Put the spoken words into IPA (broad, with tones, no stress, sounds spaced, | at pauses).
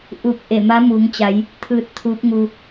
ʔ u˧˩ k̚ ʔ e˧˩ m a˧˥ m u˩˧ ŋ t͡ɕ a˩˧ j | t̪ʰ ɯː˧ t̚ t̪ʰ uː˧˥ p̚ ŋ u˧